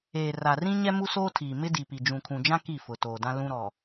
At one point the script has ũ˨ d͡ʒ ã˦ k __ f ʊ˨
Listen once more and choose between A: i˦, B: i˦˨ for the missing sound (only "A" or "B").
B